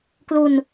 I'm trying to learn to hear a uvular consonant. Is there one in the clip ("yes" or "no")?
no